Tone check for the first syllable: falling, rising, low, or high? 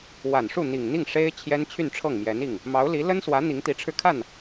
low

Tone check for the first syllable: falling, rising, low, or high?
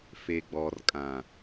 low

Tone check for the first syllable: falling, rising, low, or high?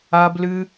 high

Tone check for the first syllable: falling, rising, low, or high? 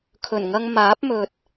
low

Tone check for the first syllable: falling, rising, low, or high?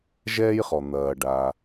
high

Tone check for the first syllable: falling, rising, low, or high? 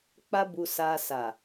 high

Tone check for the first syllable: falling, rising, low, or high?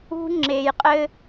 high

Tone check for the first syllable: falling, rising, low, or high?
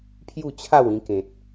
falling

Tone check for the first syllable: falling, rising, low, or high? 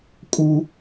high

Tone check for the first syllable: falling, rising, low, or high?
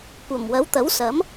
low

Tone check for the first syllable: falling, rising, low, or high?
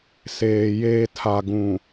low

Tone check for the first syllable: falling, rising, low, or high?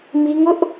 high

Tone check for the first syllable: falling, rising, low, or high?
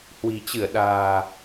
low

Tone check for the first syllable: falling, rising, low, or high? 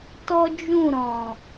high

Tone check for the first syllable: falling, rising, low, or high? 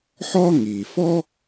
high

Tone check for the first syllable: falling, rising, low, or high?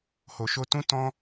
low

